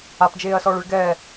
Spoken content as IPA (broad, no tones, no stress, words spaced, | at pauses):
apd͡ʒeːɐ̯sɔːɭɨɭ ɡɛː